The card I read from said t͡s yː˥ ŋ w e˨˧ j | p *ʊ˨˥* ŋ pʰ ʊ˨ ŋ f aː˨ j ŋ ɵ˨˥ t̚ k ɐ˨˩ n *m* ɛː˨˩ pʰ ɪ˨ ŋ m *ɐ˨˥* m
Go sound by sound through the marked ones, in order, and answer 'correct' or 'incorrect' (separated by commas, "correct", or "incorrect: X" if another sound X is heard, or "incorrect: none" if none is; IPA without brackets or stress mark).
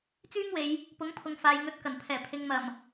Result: correct, incorrect: pʰ, incorrect: ɐ˨˩